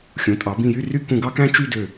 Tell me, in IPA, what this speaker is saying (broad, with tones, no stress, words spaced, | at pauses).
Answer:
xʲũ˩˧tʼɑ˩˧ bĩ˧˩jy˥˧ ry˧ kũ˧ɡɑ˥kæ̃˥ t͡ʃy˥˧dø˧˩